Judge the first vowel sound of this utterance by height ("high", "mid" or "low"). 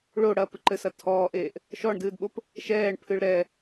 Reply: mid